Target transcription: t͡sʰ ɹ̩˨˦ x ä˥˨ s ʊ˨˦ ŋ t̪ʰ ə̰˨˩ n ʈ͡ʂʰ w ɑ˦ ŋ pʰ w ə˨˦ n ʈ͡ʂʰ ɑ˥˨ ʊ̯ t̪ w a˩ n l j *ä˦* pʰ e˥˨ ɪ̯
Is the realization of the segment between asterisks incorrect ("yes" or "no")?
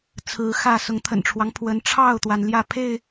yes